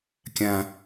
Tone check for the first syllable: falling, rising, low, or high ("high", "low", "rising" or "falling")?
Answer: high